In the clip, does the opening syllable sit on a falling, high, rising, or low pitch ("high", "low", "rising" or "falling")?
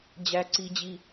high